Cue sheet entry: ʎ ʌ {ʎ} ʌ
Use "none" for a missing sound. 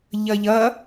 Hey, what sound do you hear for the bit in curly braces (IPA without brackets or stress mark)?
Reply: ʎ